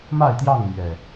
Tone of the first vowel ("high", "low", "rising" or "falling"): falling